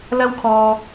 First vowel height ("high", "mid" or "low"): low